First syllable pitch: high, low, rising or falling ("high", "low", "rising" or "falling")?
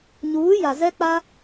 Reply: rising